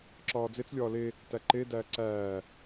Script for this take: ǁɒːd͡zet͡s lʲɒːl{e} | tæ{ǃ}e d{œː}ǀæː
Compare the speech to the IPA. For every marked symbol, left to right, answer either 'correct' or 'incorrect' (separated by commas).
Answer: correct, correct, incorrect